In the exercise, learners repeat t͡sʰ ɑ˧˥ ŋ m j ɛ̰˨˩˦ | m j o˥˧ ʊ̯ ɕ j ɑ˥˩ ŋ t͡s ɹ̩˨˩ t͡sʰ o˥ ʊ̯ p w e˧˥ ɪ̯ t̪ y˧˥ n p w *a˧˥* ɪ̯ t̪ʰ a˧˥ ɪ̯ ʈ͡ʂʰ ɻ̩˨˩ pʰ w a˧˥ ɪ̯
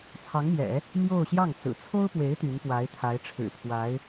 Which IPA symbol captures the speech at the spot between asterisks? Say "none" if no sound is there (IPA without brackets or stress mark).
a˧˥